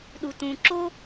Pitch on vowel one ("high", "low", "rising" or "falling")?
low